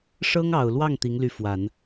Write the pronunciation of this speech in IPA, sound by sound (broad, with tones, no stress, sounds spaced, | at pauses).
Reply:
ʂ ɤ˥ ŋ ɑ˨˩ ʊ̯ l w ɑ˥˩ ŋ t̪ i˧˥ ŋ l y˧˥ f w a˨˩˦ n